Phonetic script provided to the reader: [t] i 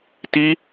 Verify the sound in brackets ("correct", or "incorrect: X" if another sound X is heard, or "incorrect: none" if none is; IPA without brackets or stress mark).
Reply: correct